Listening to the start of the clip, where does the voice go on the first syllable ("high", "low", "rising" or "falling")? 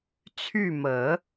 falling